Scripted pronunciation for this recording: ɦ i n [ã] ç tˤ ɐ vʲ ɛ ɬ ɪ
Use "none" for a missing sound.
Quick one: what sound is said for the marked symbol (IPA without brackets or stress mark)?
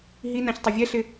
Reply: ã